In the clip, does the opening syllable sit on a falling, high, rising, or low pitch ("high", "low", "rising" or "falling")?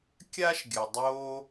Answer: high